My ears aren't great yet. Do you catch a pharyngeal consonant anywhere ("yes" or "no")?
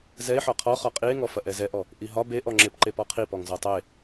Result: yes